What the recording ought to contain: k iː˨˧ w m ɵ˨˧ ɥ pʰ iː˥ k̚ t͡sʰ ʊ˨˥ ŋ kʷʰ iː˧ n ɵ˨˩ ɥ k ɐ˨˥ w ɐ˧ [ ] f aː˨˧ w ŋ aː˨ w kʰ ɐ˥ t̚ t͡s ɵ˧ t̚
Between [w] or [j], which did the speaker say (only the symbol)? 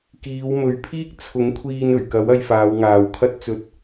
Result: j